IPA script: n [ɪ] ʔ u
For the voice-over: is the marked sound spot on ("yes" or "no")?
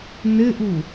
yes